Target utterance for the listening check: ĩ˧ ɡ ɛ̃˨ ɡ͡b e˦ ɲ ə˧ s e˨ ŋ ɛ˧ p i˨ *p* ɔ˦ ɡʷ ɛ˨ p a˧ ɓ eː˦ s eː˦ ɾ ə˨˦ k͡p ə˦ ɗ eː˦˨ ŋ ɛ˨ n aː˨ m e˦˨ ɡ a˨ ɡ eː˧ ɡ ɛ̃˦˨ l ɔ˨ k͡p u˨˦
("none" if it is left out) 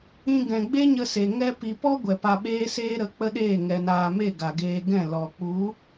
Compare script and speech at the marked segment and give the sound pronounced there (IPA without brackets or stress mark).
p